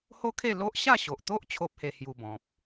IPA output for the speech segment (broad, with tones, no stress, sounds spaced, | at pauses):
h o˦ kʰ e˥˧ l o˦ ʔ ɕ a˥˧ ɕ o˨ ʔ t̪ o˦ ʔ t͡ɕʰ o˦ p̚ h e˧ h j u˧ b ɔ̃˨ p̚